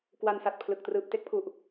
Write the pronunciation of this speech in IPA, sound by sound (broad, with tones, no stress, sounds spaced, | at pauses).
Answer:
k w a˧ n s a˨˩ t̚ pʰ l ɯ˨˩ k̚ t r ɯː˨˩ p̚ t e˦˥ k̚ pʰ u˨˩ ʔ